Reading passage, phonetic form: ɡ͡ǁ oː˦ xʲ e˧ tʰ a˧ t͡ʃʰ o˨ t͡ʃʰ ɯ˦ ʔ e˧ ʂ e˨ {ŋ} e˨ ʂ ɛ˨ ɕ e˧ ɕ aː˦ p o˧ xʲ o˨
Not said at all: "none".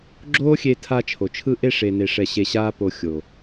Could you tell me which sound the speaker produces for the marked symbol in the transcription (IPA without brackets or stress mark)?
n